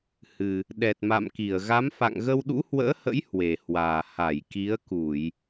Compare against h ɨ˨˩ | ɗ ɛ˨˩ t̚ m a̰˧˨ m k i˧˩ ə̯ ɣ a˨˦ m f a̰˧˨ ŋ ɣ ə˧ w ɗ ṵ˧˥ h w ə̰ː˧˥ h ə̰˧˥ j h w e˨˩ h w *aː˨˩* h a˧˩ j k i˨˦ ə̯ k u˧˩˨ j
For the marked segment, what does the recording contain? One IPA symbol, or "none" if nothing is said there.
aː˨˩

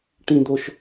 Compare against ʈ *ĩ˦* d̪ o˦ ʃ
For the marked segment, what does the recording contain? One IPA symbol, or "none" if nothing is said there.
ĩ˦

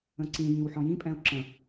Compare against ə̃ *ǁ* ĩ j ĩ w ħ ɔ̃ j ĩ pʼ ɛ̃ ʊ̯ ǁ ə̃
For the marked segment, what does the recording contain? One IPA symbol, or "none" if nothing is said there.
ǀ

